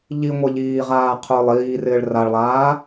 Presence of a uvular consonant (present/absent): present